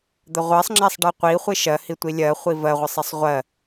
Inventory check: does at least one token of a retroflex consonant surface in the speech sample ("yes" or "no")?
yes